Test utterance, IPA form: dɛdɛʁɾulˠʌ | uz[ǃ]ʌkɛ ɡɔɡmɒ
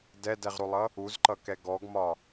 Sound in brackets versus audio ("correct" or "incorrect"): correct